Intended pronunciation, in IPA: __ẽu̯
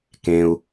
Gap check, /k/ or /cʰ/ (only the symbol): k